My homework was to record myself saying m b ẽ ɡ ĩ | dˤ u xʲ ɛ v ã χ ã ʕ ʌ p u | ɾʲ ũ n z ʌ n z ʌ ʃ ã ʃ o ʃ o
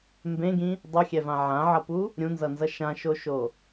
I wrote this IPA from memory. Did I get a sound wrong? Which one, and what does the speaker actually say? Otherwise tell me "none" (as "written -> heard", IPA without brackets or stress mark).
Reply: χ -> ʕ